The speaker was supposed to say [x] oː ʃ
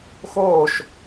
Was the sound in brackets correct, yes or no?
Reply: yes